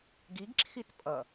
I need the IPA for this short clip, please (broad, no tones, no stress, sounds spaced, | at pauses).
ɡ i ɡ ǁʰ i t pʼ ʌ